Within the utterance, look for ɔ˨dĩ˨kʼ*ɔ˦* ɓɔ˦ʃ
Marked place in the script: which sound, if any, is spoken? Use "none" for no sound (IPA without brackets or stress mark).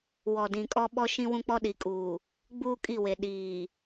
ɔ˦